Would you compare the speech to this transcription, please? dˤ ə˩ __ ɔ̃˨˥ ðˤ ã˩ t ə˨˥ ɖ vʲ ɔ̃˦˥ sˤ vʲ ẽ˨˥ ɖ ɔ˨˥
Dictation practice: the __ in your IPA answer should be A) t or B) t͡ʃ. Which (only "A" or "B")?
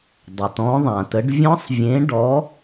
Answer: A